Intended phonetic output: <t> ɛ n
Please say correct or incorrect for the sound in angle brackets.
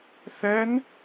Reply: incorrect